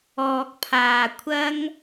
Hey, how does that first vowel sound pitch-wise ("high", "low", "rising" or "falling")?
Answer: low